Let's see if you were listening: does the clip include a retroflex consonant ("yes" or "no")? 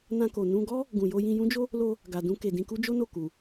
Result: no